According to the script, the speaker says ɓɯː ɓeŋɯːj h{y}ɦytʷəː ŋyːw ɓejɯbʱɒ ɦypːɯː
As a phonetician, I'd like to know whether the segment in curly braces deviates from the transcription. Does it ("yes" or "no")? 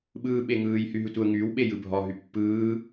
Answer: no